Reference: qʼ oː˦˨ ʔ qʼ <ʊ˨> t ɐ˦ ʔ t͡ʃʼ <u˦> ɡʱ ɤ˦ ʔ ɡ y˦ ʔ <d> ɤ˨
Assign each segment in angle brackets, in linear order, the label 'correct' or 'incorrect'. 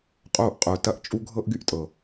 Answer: incorrect: ʊː˨, correct, incorrect: tʼ

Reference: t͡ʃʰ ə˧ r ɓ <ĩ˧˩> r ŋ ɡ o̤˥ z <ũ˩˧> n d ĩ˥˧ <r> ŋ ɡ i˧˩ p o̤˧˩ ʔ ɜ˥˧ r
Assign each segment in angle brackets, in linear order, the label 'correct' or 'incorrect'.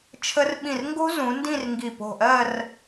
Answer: correct, correct, correct

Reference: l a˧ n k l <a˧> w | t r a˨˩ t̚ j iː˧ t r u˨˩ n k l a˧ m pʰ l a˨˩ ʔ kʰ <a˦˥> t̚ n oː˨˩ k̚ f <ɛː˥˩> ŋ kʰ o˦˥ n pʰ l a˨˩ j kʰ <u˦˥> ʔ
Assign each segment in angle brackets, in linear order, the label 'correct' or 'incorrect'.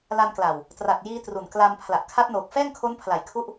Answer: incorrect: a˨˩, correct, correct, correct

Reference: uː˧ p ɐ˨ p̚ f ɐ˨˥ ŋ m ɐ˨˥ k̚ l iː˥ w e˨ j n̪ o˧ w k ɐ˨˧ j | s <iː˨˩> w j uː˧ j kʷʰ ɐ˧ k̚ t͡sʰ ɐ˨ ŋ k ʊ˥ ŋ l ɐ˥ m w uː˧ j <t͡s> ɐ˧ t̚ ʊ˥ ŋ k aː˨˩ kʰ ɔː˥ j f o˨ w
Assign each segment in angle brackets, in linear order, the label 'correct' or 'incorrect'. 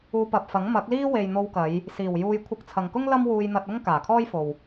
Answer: correct, incorrect: n̪

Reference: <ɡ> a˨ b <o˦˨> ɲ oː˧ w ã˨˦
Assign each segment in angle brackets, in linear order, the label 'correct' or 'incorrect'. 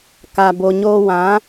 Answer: incorrect: k, incorrect: o˨

